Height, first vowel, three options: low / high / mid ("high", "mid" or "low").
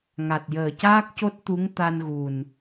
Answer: low